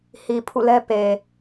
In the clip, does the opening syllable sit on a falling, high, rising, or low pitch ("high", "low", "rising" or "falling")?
low